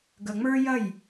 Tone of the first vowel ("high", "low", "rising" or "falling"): low